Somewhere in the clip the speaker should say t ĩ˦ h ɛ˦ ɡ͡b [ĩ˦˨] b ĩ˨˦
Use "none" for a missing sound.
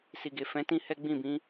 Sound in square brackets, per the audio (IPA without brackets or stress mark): ĩ˦˨